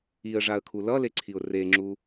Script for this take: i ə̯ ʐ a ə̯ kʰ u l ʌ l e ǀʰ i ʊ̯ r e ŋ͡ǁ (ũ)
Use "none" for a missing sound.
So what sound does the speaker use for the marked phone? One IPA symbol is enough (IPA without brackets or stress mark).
u